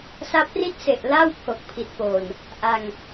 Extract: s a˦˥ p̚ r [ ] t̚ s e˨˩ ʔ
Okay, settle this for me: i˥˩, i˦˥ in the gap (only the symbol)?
i˥˩